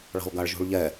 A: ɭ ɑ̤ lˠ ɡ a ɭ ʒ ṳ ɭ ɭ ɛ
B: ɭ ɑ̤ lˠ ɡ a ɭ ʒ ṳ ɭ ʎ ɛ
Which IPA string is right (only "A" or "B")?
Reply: B